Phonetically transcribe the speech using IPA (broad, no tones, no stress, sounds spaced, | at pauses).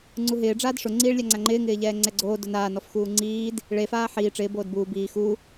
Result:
ŋ͡ǀ u ɦ ɪː ɖ͡ʐ aː d ʂ ʊ ŋ͡ǀ iː ɭ lʲ a ŋ͡ǀ a ŋ͡ǃ ɪː ŋ ɪː ʎ ɛː ŋ͡ǀ ɛ ɡ͡ǀ oː d ʊ n aː n ɔ f x uː ŋ͡ǀ iː d | ɭ e f aː ħ iː ʈ͡ʂ ɪː b oː d b uː b iː x u